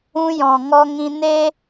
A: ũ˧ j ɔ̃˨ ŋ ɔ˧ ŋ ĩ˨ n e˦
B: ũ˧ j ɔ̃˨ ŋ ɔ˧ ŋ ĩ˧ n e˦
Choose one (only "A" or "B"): B